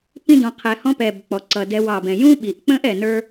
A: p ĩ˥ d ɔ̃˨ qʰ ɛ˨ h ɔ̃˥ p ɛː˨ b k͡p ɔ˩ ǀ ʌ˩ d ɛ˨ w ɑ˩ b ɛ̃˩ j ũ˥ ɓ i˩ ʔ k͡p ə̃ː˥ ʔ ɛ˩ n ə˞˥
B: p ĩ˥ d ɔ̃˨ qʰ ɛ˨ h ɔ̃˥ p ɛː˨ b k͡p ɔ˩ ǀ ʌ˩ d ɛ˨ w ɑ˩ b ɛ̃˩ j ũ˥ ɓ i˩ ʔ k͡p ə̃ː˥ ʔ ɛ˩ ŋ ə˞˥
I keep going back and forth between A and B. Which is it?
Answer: A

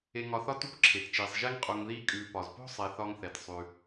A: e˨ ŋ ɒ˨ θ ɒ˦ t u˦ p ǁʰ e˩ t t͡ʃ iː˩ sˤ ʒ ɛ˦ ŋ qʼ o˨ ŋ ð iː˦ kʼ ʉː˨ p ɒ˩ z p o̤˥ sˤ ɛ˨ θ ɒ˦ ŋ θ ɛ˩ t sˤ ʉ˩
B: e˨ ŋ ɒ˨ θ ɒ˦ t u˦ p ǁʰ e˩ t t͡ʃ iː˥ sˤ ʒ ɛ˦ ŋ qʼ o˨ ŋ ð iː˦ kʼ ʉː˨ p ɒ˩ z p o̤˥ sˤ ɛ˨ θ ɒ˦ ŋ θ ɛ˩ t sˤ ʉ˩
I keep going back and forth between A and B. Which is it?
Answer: A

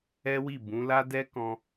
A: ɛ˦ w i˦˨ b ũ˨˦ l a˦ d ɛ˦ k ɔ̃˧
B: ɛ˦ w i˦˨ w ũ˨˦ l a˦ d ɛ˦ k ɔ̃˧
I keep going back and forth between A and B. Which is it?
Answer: A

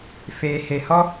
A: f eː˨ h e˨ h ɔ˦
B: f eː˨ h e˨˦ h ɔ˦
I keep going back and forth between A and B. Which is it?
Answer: A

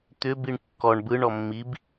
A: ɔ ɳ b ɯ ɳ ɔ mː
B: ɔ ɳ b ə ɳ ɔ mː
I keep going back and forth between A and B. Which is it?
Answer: A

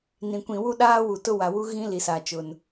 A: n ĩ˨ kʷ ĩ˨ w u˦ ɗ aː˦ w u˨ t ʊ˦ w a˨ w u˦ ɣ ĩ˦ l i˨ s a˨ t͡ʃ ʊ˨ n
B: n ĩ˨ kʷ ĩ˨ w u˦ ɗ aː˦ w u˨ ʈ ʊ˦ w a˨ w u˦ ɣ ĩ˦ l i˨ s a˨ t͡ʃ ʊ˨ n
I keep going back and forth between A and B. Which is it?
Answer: A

